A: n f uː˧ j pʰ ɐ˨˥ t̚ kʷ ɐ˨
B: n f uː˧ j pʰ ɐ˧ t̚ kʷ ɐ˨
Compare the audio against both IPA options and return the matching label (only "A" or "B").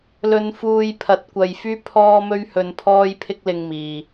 A